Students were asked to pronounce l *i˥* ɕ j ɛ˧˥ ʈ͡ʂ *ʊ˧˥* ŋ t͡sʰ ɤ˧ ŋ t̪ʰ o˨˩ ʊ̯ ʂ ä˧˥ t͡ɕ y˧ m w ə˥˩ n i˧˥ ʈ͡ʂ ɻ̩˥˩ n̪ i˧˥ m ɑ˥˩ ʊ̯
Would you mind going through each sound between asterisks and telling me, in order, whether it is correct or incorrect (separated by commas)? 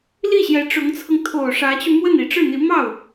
incorrect, correct